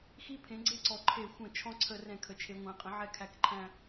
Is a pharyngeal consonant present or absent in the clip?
present